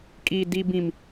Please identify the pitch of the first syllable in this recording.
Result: high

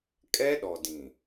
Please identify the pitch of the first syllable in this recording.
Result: high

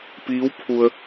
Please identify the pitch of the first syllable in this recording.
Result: rising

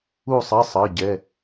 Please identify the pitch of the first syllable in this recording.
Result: falling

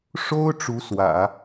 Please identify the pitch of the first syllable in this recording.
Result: high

